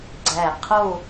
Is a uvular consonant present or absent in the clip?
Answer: present